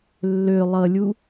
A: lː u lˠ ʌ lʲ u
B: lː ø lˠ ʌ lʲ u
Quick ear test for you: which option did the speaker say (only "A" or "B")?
B